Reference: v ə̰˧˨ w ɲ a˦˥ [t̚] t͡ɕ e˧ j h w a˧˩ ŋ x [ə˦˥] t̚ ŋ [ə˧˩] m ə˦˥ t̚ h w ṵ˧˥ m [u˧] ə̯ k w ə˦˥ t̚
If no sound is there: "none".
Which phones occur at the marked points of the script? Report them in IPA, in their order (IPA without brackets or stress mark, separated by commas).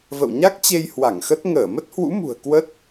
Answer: k̚, ə˦˥, əː˧˩, ṳ˨˩